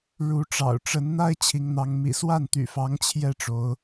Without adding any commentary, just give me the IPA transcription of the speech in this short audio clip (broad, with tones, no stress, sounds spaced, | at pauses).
ɻ u˨˦ ʈ͡ʂ ɑ̰˨˩ ʊ̯ ʈ͡ʂ ə˨˦ n n̪ a˦ ɪ̯ t͡ɕʰ i˨˦ ŋ n̪ ɑ˨˦ ŋ m ḭ˨˩ s w a˥˨ n t̪ y̰˨˩ f ɑ˨˦ ŋ t͡ɕʰ j ɛ˥˨ ʈ͡ʂ o˨˦ ʊ̯